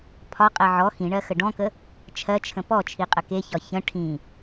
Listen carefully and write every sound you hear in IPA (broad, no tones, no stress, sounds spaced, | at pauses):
pʰ ɒ qʼ ɜ ʕ ɔ x ĩ ɳ ɜ x ə ɖ ɔ̃ k ə | t͡ʃʰ ɜ t͡ʃʰ ə̃ p ɔ t͡ʃʰ i qʼ ə k e ç ɒ ç ə̃ ʈʰ ĩ